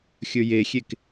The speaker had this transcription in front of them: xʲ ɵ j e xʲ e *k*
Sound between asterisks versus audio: correct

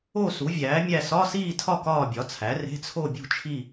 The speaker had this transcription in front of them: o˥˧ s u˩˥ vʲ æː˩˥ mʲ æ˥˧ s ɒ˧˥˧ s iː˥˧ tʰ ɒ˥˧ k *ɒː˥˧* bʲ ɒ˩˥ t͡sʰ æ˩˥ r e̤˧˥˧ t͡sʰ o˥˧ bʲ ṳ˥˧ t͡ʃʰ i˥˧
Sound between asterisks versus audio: correct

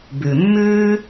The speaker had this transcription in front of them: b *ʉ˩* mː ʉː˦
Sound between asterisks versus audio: correct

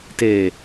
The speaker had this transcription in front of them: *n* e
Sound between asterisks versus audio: incorrect: t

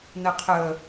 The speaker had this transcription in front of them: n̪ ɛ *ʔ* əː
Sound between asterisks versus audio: incorrect: qʰ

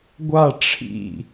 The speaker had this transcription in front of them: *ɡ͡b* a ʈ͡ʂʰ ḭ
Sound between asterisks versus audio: incorrect: ɡʷ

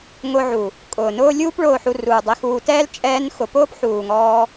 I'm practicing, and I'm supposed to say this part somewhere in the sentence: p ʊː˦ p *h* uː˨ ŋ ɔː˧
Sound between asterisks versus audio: incorrect: ħ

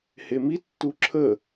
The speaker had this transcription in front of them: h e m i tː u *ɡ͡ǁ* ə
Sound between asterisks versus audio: incorrect: ǁʰ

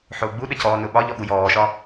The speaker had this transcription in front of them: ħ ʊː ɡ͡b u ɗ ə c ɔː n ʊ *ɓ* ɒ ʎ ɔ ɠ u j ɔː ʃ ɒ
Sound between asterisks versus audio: correct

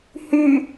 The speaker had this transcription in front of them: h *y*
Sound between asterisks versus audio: correct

